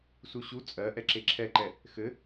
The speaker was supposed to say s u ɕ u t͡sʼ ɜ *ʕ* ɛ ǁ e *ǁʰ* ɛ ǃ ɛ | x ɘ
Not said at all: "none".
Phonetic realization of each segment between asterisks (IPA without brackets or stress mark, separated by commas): ʔ, ǁʰ